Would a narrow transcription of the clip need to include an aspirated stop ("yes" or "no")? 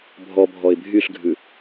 no